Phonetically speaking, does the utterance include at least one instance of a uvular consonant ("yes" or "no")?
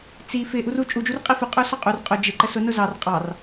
yes